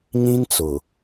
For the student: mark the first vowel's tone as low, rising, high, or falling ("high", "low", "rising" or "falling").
high